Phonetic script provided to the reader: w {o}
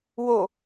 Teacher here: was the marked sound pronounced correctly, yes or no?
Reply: yes